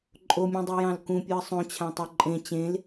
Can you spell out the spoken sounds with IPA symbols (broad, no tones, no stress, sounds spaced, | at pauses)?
ǃʼ o mʲ ũ dˤ i j ɑ̃ l k ũ pʲ u ə̯ sˤ õ t͡ɕʰ ã tˤ o ǃʼ ẽ t͡ɕ ẽ l